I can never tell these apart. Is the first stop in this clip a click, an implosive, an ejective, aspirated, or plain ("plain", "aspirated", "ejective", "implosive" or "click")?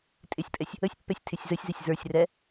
ejective